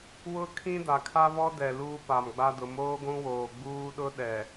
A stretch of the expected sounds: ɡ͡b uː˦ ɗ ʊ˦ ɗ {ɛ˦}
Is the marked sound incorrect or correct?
incorrect